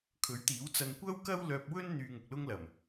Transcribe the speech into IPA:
kʰ ɵ˨˥ ɥ t̪ iː˨˥ w t͡s ɐ˧ n kʷ ɐ˥ w k ɐ˥ w l œː˧ p̚ w ɵ˥ n n̪ yː˧ ŋ ʊ˨ k̚ l ʊ˥ ŋ l ɐ˨˩ m

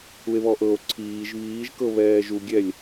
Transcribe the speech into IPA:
u e̯ β ɔ ʔ ɤ o̯ ǀʰ iː ʒ β iː ʒ k ɤ β ɛː ʒ u ɡʲ ɛ lʲ

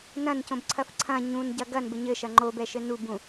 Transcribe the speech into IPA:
n ɐ̃ n c õ b ǀʰ ɐ f ǀʰ ɐ̃ ɲ ũ n ɟ ɐ ɡ ɐ n b ɘ ɲ ɘ ʃ ɐ ŋ͡ǃ o b ɛ ʃ ɘ n u b ũ

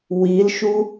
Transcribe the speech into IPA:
w i l ʃ u

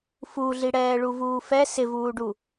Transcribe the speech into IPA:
f u ɮ i ɽ ɛː ɭ u v uː f ɛ s ɪ v uː ɖ u

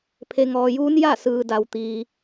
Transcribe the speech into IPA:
pʰ e˩ ŋ ɔː˩ j uː˧˥ n j a˥˨ s ɯː˩ d a˩ w t̪ iː˩

